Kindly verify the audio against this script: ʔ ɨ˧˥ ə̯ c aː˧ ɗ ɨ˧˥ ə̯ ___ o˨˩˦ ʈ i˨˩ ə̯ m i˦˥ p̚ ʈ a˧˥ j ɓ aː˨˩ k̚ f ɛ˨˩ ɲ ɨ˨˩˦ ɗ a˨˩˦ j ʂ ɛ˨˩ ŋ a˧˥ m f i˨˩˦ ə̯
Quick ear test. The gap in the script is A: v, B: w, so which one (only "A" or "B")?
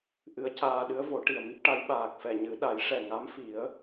A